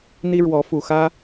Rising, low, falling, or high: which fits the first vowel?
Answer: high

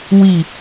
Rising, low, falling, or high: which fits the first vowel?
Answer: low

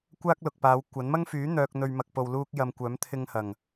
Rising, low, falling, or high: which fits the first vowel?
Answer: high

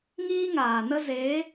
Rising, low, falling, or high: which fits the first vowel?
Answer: high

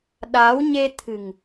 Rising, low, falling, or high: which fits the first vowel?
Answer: rising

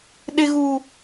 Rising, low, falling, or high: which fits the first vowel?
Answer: high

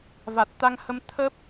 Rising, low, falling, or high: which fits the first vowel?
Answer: low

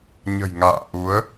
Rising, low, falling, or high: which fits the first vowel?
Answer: low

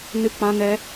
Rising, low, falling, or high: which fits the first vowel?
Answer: high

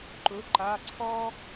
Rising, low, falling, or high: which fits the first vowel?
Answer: rising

